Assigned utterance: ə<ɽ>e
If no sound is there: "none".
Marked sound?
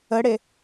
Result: ɽ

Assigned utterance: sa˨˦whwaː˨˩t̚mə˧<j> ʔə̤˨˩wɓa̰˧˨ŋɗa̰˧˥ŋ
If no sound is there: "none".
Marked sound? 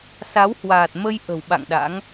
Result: j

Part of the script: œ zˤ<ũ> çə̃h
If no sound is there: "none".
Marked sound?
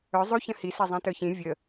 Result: u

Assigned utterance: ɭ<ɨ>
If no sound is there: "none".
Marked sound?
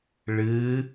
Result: ɨː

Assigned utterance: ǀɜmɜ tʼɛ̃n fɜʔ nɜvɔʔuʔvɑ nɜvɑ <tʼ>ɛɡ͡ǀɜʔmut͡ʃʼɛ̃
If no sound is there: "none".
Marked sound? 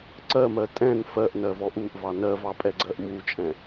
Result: pʼ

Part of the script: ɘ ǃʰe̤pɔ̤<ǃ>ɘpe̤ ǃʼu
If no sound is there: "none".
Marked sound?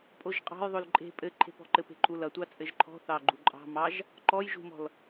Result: ǃ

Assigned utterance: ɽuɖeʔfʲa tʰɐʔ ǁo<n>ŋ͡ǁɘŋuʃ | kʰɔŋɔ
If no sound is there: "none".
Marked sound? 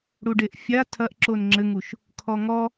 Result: n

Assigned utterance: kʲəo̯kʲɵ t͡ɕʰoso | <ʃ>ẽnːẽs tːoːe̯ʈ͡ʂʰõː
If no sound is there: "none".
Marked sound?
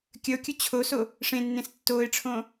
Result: ʂ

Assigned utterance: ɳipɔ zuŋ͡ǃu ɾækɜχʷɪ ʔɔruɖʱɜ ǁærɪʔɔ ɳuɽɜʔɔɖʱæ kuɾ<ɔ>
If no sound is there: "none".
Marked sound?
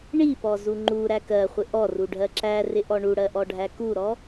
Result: ɔ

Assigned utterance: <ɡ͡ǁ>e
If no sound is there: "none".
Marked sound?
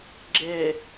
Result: ɡ͡ǁ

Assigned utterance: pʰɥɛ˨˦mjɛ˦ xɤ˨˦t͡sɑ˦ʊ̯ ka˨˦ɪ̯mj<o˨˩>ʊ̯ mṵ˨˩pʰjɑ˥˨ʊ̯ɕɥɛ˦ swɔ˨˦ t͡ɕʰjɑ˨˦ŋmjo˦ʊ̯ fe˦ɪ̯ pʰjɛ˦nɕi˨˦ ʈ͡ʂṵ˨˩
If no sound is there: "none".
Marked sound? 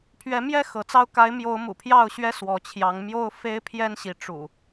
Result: o˨˦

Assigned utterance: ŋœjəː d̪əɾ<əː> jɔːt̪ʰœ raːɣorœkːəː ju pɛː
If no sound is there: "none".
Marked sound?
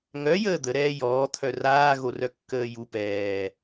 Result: ɛː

